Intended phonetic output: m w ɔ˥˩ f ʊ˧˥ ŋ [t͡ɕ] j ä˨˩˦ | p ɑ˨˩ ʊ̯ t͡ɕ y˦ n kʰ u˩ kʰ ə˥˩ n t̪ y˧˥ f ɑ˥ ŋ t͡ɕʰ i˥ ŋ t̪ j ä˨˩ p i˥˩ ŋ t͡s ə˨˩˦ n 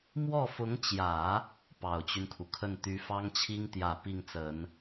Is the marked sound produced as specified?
yes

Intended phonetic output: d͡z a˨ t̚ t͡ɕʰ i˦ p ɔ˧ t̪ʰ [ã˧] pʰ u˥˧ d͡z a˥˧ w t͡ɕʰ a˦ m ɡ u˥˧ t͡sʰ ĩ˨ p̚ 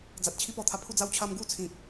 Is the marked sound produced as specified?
no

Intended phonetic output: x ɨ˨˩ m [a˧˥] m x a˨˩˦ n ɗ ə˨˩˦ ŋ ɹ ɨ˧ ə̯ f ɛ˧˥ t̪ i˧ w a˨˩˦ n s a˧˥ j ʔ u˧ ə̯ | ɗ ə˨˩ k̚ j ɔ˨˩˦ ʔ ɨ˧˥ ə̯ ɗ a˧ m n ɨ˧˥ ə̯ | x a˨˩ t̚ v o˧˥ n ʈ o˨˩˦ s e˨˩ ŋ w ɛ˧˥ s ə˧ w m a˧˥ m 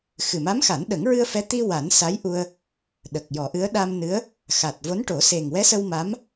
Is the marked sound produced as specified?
yes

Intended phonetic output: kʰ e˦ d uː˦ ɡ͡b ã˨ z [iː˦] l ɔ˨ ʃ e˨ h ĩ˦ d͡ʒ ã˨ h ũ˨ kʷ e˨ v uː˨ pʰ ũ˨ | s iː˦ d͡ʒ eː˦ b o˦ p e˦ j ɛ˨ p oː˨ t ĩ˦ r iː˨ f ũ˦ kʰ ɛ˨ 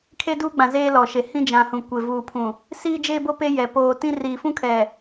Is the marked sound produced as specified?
no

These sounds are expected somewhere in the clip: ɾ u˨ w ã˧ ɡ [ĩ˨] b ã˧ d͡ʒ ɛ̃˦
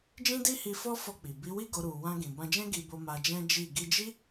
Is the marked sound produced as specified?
yes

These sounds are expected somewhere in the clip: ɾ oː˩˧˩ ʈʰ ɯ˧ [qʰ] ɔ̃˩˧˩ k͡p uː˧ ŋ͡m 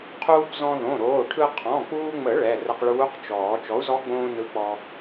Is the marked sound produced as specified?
yes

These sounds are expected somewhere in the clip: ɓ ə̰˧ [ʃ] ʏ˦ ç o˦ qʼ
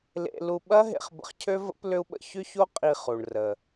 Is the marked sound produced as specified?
no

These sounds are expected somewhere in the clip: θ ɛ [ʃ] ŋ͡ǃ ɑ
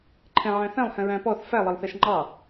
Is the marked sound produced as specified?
yes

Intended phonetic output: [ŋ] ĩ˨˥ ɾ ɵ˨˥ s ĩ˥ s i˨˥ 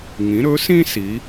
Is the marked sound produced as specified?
yes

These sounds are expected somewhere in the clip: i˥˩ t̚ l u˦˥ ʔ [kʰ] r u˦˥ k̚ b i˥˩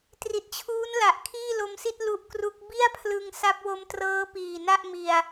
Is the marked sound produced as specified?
no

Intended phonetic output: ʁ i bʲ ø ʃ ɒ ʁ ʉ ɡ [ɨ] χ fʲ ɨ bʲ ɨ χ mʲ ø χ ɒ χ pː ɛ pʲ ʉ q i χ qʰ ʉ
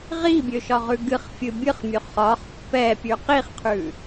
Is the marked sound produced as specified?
yes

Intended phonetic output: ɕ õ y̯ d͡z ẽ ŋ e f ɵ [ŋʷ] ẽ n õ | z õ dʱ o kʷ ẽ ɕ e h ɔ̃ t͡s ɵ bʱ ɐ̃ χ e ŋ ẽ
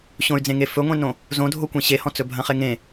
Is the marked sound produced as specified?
yes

